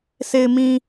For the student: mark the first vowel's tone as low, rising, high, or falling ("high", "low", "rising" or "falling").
low